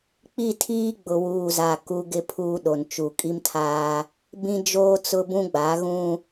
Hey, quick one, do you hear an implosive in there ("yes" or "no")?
yes